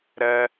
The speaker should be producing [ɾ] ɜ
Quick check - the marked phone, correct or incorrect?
correct